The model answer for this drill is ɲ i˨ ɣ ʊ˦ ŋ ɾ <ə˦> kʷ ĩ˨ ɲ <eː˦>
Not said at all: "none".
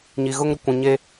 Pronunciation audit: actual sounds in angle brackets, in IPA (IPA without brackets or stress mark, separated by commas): ʊ˦, e˦